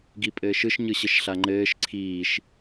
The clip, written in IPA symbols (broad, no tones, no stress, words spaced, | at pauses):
ɡipʼɘːʃɯʃ ɲɯɕɘʃɬaŋ͡ǃɘːʃ ǀʰiːʃ